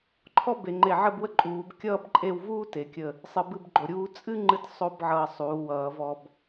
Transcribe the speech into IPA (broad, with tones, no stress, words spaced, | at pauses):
ǃʰɔ˥ be˩˧ŋ͡ǃe˧˩ ʕə˥˧bwə˥ǃʼuː˩˧b kʲʌː˥bǃʼe˥˧w vuː˥te˩˧kʲə˧˩ | sˤɨ˧bɨ˥˧bɡ͡ǃo˧˩ɾʲuː˥ t͡sʼɨ˥ ŋ͡ǃɨ˥t sˤo˥bʕʌː˧ sˤuː˩˧wʌː˩˧vɔ˧b